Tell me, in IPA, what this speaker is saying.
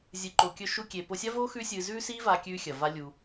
zʲ ɨ˧ ǃ o˧ kʲ ɵ˥ ʃ u˥ kʲ e˧ p o˧ sʲ a˥ v oː˥ x ʉː˥ sʲ ɨː˧ z ʉː˥ s iː˥ v aː˧ kʲ ʉː˧ xʲ ɐ˩ v a˧ lʲ u˩

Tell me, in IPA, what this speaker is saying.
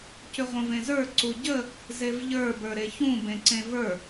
c ʏ ʁʷ ə̃ v ẽ z ə˞ ǀ u ɟ ə | z e v ʎ ə˞ b ə˞ ɾ e ç ũ b ẽ ǀ ẽ v ə˞

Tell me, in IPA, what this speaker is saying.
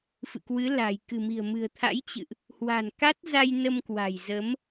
f ɨ̰˧˨ k w ɨ˨˦ l a̤˨˩ j k ɨ̤˨˩ m i̤˨˩ ə̯ m ɨ̤˨˩ ə̯ t̪ʰ a̰˧˥ j t͡ɕ ɨ̰˧˨ ʔ | h w a̤˨˩ n k a˦˥ t̚ z a˧ j n ə˧ m k w a̤˨˩ j z ə˨˦ m

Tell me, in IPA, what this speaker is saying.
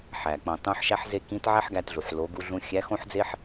ħ æ˩ k͡p õ˩ tˤ ũ˧˥ ħ ʃ æ˥ ħ z e˥ k ĩ˧˥ t ʕ æ˥ ħ ɡ æ˧ t ɮ u˩ ħ l o˩˧ ɡ u˧ ɮ ũ˧ xʲ æ˧˥ x õ˥ ħ d͡z e˥ ħ

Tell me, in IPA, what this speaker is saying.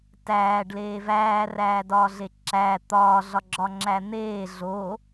t æː ɖ l eː v æː r æː d ɒː ɮ e ǁ æ t̪ ɒː ɮ ɒ ɡ͡ǁ ɒ ŋ͡ǁ æ n̪ eː ɮ o

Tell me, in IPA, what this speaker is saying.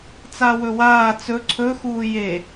t͡s a w ɵ w aː t͡s ɵ ǀʰ ɵ x uː j e

